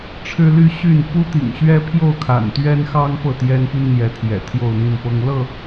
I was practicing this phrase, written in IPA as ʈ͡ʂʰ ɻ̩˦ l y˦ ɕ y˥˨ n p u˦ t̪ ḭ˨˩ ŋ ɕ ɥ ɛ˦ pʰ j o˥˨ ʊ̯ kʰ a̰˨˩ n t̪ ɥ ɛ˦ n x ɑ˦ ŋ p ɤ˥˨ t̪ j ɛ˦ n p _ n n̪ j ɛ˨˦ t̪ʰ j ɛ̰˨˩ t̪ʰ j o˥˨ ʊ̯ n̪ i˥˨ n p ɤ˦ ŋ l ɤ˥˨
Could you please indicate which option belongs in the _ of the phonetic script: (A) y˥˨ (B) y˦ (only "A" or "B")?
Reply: B